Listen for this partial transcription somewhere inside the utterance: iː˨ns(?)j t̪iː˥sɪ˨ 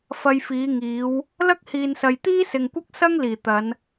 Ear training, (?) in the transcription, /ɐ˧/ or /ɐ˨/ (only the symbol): ɐ˨